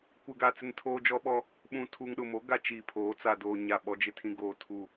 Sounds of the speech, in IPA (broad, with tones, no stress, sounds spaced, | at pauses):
kʷ ɪ˨ ɡ a˨ t͡s ɪ˦ n tʰ oː˦ d͡ʒ ɔ˦ ɓ ɔ˦ | ɓ ũ˨ tʰ u˨ ŋ ɗ ʊ˨ m o˦ ɡ a˨ t͡ʃ iː˨ pʰ oː˨˦ t͡s a˨ d oː˨ ɲ a˦˨ ɓ ɔ˦ d͡ʒ ɪ˦ tʰ ĩ˦ ɡ oː˨ tʰ u˨